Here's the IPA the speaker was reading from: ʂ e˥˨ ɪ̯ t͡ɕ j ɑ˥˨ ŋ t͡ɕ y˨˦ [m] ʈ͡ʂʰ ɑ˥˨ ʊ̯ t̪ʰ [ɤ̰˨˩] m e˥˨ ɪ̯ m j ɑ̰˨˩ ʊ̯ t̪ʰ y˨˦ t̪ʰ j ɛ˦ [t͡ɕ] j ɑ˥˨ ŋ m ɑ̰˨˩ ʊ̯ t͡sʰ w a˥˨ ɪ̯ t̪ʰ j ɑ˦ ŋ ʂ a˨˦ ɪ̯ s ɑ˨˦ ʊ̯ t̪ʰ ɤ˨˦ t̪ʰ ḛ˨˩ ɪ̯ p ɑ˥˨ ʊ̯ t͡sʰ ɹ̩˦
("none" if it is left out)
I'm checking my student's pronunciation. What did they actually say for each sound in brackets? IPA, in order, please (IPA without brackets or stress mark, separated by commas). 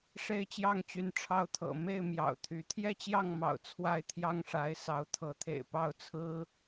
n, ɤ̰˨˩, t͡ɕ